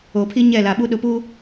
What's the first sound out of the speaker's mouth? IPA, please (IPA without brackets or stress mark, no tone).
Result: o